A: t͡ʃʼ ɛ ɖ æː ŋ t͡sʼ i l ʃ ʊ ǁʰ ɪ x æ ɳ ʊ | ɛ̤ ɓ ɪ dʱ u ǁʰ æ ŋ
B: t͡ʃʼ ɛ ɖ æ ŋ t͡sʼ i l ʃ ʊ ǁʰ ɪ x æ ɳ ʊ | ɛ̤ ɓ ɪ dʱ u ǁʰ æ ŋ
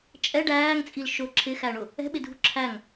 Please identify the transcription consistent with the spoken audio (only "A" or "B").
A